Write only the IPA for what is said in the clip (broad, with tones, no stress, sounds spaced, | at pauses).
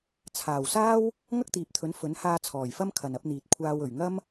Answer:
t͡sʰ aː˨˩ w s aː˥ w | ŋ ɐ˥ k̚ t̪ iː˨ p̚ t̪ʰ ɵ˨˥ n f ɵ˨˥ n h aː˧ t͡sʰ ɔː˨˩ j f ɐ˥ m kʰ ɐ˨ n ɐ˨˥ p̚ n̪ iː˨ t̚ kʷʰ aː˧ w ɵ˨˩ ɥ ŋ ɐ˥ m